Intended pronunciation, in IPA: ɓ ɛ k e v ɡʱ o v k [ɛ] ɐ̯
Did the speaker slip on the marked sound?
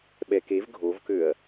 yes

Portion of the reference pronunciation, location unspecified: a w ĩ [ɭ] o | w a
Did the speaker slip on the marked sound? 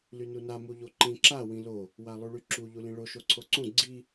yes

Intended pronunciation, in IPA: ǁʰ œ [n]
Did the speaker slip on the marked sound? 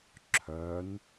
no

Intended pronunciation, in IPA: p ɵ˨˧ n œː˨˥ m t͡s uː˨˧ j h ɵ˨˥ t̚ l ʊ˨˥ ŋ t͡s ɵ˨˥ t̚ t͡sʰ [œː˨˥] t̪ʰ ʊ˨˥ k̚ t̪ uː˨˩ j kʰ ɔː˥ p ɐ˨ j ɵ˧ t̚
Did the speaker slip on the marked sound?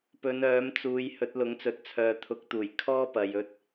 yes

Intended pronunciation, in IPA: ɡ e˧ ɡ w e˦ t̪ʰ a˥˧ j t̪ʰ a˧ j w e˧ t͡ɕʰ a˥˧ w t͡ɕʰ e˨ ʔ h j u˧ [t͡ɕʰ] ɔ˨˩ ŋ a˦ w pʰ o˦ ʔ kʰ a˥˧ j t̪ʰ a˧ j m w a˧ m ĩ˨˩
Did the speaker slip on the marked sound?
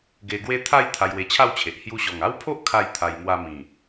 yes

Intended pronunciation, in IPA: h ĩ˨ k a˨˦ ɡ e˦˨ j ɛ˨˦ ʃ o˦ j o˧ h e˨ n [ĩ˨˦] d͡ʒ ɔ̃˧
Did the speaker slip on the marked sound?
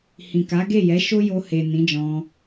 no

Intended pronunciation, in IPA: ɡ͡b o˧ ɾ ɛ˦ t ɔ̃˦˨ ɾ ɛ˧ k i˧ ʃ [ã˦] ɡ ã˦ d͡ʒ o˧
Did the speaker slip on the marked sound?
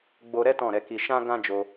no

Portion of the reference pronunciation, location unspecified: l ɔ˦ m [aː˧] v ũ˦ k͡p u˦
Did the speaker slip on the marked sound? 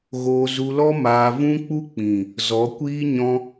no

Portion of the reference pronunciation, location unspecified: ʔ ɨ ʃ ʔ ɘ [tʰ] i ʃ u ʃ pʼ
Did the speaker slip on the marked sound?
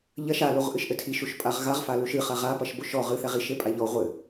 no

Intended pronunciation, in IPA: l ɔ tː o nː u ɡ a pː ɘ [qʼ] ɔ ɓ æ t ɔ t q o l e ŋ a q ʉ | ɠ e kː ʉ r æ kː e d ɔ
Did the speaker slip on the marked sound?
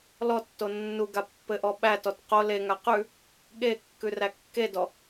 yes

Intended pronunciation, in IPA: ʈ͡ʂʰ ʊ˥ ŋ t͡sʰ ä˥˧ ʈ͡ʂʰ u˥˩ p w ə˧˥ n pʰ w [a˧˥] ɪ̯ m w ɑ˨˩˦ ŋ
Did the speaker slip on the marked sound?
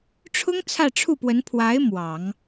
no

